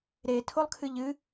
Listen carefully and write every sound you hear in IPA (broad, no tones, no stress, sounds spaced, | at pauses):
ɾ e tʰ o lˠ kʰ ɨ ʎ ɨ